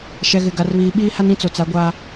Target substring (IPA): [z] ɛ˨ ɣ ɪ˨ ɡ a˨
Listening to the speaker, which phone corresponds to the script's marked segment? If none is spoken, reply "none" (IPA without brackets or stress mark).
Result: ʃ